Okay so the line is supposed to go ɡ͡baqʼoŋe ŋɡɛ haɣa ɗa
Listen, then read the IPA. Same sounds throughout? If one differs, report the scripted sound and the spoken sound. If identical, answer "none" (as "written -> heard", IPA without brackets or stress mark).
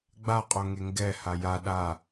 ɣ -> j